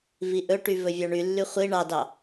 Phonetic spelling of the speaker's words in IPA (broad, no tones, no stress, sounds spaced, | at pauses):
v i ʔ ɵ ʈ y v ɵ vʲ ɑ ɳ y lː y χʷ i ɳ ɑ d ɑ